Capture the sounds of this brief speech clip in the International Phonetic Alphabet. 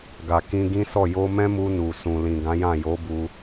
ɡa˨kĩ˧ɡĩ˦sɔ˦˨ jo˧mɛ̃˦mu˧ nu˨ sũ˨lĩ˨ ɡã˨˦jã˦˨ jo˨˦ bu˧

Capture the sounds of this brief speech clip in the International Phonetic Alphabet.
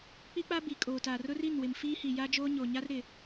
k͡pi˦k͡pa˦ bi˨kʼoː˨ta˨ rʊ˦ri˦˨nwɪ˨m fiː˦hi˨ja˦d͡ʒoː˦ ɲo˨ɲa˦r ɾɪ˨

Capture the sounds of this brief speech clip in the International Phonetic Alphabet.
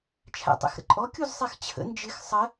t͡ʃʰæ̰tˤɛ̰xɾə̰ǃʼɔ kʲuzsˤɛxt͡ɕʰə̰ nd͡ʒɪx sˤə

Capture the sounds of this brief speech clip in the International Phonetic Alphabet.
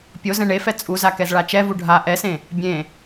pʲo zɛ̃ɳefɛ t͡sʼuza kɛzɭat͡ʃɛvu ɖʱa ʔɛsẽ | bʲẽ

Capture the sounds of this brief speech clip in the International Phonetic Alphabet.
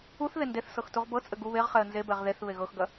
uθ ðendeθsɤx tuʁbɤt͡sʼɘ ɡu βeʁχɛə̯ nzebɛʁ ðeθ βeɣɤxɡɐ

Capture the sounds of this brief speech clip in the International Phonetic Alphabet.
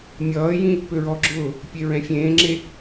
mʲʌːjĩ | pøɹɔɡ͡ǁʊː | pʲeɹɛ̃fʲẽːŋ͡ǁe

